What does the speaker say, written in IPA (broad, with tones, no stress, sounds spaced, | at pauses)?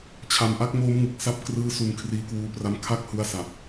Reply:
t͡ɕʰ a˨˩ m ʔ a˦˥ k̚ m oː˦˥ m ŋ ɯ˨˩ k̚ s a˥˩ p̚ k r ɯː˦˥ s u˧ n kʰ r iː˦˥ k w uː˧ p r a˦˥ m kʰ a˥˩ k̚ h u˧ a̯ s a˨˩ p̚